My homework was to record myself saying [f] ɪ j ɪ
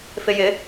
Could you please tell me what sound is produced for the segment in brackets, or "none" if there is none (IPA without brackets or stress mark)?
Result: f